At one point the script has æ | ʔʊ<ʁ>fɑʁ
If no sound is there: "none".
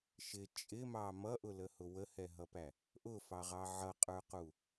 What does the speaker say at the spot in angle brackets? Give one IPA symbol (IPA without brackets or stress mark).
none